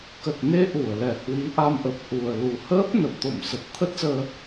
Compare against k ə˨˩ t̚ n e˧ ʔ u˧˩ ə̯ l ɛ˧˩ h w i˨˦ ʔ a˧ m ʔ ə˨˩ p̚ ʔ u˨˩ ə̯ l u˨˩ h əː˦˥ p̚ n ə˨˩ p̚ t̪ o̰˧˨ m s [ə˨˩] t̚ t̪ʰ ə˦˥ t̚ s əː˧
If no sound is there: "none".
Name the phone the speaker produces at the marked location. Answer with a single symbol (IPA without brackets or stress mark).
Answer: ə˨˩